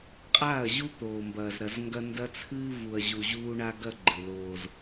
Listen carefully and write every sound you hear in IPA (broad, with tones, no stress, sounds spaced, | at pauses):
qʼ aː˦˨ ɐ̯ ʑ u˦ t̪ oː˨ m b ɐː˨ z ɾ ɐ˨ z ŋ ɡ ɐ˦ n d ɐ˦ t͡sʰ ɨː˦ v u˨ ɐ̯ ʑ u˨ ʑ uː˦ ɳ a˦ ɡ ɐ˦ ɡ͡ǃ ɨ˨ l oː˦ z